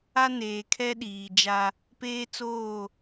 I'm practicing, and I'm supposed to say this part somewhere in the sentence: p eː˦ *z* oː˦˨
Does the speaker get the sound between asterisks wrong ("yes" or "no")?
yes